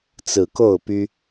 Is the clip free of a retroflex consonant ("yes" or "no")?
yes